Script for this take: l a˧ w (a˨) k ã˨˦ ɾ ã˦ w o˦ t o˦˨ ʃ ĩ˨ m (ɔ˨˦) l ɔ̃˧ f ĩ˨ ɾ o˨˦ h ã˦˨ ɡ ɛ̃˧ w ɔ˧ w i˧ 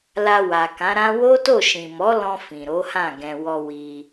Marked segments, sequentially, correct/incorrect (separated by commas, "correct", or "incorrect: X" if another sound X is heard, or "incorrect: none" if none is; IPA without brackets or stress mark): correct, correct